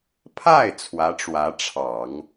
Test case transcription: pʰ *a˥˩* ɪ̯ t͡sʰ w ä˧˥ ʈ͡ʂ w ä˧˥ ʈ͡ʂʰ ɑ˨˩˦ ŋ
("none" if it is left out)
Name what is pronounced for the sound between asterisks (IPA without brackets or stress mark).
a˥˩